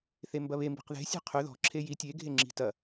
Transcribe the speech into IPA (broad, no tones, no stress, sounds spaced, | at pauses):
θ e m b ɐ β e m b i̤ q ð e̤ sʲ e̤ qʰ ʏ ð ɔ̤ ǁʰ e j i tʲ e ɡʱ e ŋ͡ǁ i̤ t ɐ